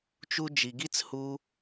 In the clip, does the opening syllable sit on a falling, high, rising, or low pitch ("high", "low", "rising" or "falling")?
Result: high